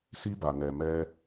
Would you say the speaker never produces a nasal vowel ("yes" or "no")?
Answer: yes